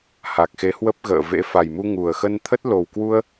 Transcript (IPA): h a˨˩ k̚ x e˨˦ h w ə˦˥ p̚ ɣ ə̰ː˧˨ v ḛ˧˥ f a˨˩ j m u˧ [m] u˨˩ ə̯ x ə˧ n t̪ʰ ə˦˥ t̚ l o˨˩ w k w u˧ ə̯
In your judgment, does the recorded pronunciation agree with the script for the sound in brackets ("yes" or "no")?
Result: no